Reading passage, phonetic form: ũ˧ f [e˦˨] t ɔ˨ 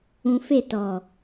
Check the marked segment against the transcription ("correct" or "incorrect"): correct